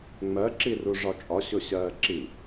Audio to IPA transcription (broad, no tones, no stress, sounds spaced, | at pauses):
ŋ͡m ɜ ǁ i r u ʐ ɒ t͡ʃʼ ɒ ɕ ʊ ɕ ɜː ǁ i